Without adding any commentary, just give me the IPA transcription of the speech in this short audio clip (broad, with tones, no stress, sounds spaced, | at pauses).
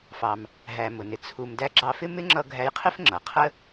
f ɑ˩ m | ɦ æ˩ m ʊ˩ n ɪ˩ t͡sʰ u˩ m d æ˧ ɡ͡ǁ ɑ˧ f ɪ˥ m ɪ˥ ŋ͡ǁ ʌ˧ ɡʱ æ˧ j qʰ ɪ˥ f ŋ͡ǁ ʌ˩ qʰ ə˥